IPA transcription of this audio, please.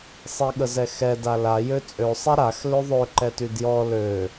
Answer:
sˤ i ɠ ə z ɛ x ɛ d a l a j ø t͡sʼ ø sˤ ɛ ɾ a x l ø ðˤ ø ǃ ɛ t y d j ɔ l ø

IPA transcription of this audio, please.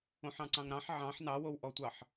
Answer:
õ ħ ɑ̃ ǀ ɑ̃ ŋ ɾ ɑ̃ ħ ʕ ɑ̃ ħ n ɑ w o w ʔ ɔ tʷ ɑ ħ

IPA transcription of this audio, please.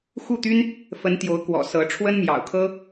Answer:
x u˥˩ t̪ y˥ n | f ə˧˥ n t̪ j o˧˥ ʊ̯ k w ɔ̰˨˩ s ɤ˧˥ ʈ͡ʂʰ w ə˥ n m j ɑ̰˨˩ ʊ̯ kʰ ɤ˥

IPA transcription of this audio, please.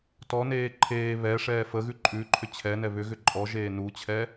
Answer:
t ɔ n eː ǃʰ eː β ɛ ʂ ɛː f ə ɣ ʉ ǃʼ ʉ ǃʰ ʏ t͡ɕʰ ɛ n ɛ β ʏ ɣ ʏ ǃʼ ɔ ʒ eː n u t͡ɕʰ ɛ

